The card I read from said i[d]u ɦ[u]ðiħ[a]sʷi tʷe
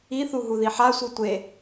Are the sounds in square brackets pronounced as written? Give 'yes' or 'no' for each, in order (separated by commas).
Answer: no, yes, yes